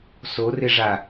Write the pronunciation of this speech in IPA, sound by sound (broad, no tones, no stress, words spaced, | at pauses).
sorɪʐa